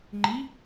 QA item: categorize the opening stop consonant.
click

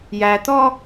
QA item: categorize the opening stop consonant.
plain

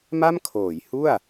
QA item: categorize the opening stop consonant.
aspirated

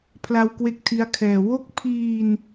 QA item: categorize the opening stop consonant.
aspirated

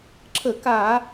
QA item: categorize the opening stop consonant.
click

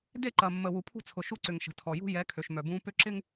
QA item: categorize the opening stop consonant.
plain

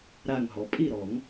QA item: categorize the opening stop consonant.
ejective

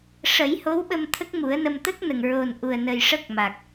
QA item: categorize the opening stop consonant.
implosive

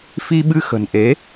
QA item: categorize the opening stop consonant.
implosive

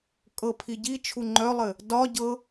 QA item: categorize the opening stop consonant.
ejective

